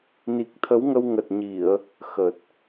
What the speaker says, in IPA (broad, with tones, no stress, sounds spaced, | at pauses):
n i˨˩ k̚ t̪ʰ ə˨˦ w ŋ ə˧ w ŋ ə˨˩ t̚ ɲ i˧˩˨ ə̯ | x ə˨˩ t̚